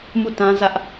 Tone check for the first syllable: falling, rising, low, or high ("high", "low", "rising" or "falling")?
falling